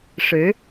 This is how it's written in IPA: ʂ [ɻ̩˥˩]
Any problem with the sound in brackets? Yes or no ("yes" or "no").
yes